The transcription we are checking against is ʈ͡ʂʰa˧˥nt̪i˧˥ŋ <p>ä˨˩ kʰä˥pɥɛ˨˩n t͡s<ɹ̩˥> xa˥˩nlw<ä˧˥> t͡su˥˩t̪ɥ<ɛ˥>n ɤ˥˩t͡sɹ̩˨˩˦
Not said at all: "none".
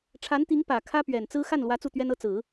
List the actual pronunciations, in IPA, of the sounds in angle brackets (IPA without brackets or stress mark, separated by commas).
p, ɹ̩˥, ä˧˥, ɛ˥